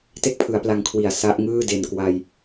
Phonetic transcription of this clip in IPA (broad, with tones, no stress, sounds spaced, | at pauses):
t e˥˩ k̚ pʰ ɯ˩˦ a̯ p l a˧ ŋ kʰ w i˨˩ a̯ s a˦˥ ʔ ŋ ɯː˥˩ d e˨˩ n k w a˧ j